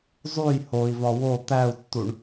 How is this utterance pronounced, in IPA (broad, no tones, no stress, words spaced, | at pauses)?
zˤuj hoi̯vɒ wo t̪æu̯tːuɳ